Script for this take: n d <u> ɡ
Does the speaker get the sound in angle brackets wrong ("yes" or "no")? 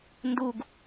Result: no